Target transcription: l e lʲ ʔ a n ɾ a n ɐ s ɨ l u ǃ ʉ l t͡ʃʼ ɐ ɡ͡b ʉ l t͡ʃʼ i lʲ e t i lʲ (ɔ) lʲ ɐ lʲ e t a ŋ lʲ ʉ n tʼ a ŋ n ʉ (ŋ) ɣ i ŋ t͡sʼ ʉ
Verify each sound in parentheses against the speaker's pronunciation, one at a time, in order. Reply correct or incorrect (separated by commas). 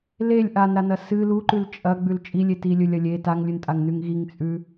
incorrect, correct